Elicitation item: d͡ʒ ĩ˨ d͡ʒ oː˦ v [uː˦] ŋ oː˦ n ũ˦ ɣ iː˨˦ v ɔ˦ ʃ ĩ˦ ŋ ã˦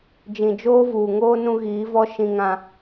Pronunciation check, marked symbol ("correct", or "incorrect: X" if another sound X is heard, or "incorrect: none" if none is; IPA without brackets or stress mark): incorrect: uː˨